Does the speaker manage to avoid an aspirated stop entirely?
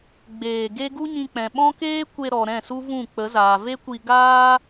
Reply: yes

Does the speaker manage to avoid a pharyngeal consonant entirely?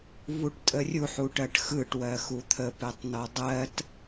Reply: no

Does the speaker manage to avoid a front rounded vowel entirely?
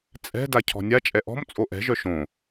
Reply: no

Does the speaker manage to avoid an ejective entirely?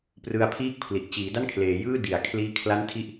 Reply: yes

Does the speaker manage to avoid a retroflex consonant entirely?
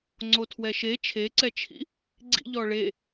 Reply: no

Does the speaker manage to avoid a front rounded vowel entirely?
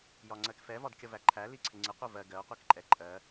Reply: yes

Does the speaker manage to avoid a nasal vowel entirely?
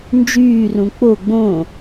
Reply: no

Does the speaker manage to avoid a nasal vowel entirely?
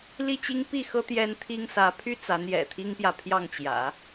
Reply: yes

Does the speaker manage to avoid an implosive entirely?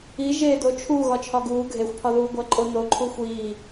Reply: yes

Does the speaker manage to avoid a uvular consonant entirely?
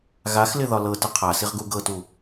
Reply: no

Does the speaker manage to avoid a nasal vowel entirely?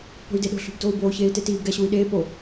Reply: yes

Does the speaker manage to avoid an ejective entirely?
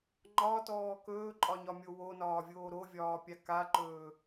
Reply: no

